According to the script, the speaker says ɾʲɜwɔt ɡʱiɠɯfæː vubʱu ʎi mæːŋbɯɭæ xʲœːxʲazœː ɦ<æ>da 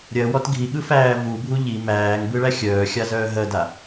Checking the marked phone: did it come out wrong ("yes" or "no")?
yes